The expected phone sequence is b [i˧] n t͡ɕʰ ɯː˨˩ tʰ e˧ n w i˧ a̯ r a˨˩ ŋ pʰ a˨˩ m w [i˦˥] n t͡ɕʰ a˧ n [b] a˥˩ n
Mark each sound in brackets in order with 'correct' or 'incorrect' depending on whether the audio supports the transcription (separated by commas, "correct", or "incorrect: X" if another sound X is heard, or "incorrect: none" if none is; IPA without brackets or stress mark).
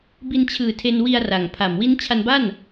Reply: correct, correct, correct